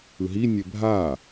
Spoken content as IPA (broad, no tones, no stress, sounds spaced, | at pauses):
ɯ ɦ i nʲ e bʱ a